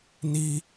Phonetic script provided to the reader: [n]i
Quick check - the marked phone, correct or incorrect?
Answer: correct